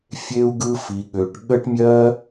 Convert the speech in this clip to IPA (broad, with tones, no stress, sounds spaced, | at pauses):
fʲ e˦ u̯ ɡ ɯ˦ f i˧ ɠ ø˧ ʈ ɠ ə˦ ʈ mʲ ɜ˦